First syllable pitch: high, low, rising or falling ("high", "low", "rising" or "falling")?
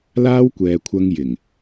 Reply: high